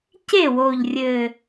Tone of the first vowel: falling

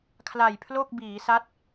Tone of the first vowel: low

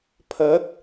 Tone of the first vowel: rising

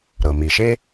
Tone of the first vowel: low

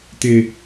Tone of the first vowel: low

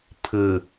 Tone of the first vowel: low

